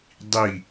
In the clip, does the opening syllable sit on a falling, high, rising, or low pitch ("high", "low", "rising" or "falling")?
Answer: falling